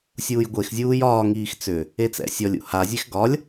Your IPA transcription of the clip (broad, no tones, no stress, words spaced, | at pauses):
sʲuːjɡʷexzʲuːj ɒːŋiːx t͡sʏ | et͡sɛ̰sʲɔlʲṵ hazʲex ɡɒlʲ